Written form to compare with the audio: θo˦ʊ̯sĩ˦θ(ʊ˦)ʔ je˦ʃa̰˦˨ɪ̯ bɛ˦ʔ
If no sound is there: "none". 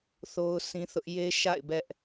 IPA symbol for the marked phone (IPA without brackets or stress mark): ʊ˦